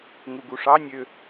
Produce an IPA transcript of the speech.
ŋuɡuʂɑ nʲø

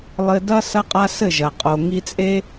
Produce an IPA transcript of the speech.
lˠɘ˧dɐ˦ sɐ˦qʼa˦sɘ˦˨ʒɐ˨ qʼo˨ŋi˧t͡sʼe˦

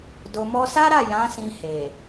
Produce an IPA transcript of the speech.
do˨mɔ˧sa˦ɾa˦˨ jã˨˦sĩ˧ he˨

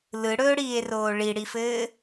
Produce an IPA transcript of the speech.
lɯɽɵːɽiːe̯roː ɭiɽifɘː

